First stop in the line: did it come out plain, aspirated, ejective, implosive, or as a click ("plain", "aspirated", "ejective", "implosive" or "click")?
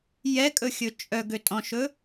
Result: ejective